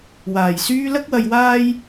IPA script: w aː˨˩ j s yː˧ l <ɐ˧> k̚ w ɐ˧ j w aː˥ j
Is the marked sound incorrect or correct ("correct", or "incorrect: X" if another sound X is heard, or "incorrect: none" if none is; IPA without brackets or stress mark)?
incorrect: ɐ˥